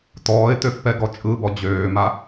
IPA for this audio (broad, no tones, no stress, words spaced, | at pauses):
tɔːɪ̯tøfpɛ ɡɔt͡ʃʼɯbɔ d͡ʑøːma